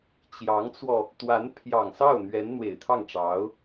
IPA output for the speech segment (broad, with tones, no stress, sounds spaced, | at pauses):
t͡ɕ j ɑ˧˥ ŋ t͡s w ɔ˧ | t̪ w a˧˥ n pʰ j ɑ˨˩ ŋ s ɑ˥˩ ʊ̯ n̪ ɥ ɛ˧˥ n n̪ w e˨˩ ɪ̯ t̪ʰ ɑ˥˩ ŋ ʈ͡ʂ ɑ˧˥ ʊ̯